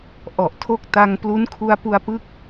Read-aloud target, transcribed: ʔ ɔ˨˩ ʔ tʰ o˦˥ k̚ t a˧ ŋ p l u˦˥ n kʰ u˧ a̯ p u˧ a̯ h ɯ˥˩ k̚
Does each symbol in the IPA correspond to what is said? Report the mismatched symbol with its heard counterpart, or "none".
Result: h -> p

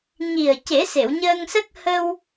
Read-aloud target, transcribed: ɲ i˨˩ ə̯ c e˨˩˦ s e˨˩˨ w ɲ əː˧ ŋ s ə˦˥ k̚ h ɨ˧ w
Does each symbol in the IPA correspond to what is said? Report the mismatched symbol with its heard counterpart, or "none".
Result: ɨ˧ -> ə˧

